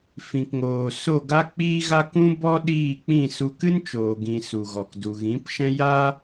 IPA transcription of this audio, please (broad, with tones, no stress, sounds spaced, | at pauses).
f ĩ˨ k ŋ oː˨ s o˦˨ ɡ a˦ k͡p iː˦ ɣ a˦ k ũ˦ b ɔ˦ ɗ iː˦˨ k͡p ĩ˦˨ s u˧ k ɨ˦ n t͡ʃ oː˨ ɡ ĩ˨ s u˨ ɣ ɔ˨ k d u˨ ɣ ĩ˨˦ p ʃ ɛ̃˦ j a˦